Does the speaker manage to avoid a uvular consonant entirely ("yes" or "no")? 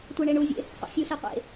no